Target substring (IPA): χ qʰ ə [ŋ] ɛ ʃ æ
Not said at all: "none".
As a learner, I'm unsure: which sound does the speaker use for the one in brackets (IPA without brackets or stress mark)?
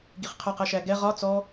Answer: q